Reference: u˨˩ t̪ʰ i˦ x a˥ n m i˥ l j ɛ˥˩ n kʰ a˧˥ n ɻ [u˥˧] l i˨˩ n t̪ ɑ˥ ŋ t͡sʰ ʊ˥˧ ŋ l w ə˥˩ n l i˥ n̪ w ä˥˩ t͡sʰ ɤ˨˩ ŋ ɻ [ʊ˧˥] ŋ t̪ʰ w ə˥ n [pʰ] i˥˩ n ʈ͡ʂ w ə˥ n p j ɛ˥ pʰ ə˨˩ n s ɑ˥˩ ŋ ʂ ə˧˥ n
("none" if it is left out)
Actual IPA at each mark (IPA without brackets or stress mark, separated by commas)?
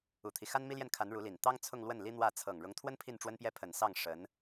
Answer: u˧˥, ʊ˧˥, pʰ